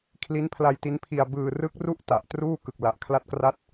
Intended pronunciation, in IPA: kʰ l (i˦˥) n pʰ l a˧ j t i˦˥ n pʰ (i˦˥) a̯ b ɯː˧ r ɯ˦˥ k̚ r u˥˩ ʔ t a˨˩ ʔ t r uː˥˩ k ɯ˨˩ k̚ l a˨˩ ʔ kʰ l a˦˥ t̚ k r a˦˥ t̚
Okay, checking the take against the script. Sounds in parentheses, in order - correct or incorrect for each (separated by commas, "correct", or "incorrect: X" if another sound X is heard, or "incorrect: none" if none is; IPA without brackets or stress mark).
correct, incorrect: i˧